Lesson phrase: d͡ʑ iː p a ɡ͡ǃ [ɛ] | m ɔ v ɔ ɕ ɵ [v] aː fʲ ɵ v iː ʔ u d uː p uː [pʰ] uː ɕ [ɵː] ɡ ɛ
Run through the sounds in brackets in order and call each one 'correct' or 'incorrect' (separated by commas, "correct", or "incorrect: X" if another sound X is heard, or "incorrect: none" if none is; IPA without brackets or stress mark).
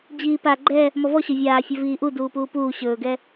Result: correct, incorrect: vʲ, incorrect: p, correct